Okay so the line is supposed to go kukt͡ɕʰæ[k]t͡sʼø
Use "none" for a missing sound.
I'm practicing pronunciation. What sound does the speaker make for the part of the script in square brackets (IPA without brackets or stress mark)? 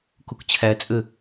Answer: none